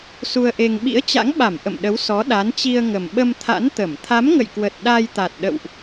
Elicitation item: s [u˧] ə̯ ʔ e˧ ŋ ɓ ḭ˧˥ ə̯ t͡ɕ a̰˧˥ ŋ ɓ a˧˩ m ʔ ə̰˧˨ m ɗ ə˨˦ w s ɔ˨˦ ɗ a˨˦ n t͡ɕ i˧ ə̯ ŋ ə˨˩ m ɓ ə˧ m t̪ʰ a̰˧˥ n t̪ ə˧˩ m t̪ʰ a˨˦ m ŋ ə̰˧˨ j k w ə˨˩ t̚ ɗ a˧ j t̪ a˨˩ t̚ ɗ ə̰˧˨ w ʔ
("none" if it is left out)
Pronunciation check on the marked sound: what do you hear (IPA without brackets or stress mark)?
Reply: u˧